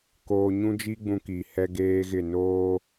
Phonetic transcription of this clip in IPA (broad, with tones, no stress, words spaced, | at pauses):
koː˨ɲũ˦d͡ʒi˦ ɡ͡bũ˦ki˨ hɛ˦ɡeː˦ɣɪ˦˨ noː˦